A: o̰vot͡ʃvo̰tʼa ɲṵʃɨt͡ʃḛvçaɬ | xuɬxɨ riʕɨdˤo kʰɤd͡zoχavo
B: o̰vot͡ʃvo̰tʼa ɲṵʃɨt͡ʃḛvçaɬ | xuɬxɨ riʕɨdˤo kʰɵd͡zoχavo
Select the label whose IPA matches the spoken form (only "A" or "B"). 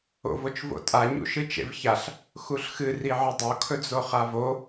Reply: B